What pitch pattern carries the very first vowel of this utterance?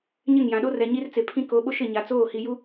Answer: falling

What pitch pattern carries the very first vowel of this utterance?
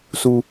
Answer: low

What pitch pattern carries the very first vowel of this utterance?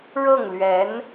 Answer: falling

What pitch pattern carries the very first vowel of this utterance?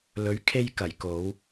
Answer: rising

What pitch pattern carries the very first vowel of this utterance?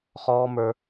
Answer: high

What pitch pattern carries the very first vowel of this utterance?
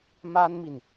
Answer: high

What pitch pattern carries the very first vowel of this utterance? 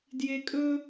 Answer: low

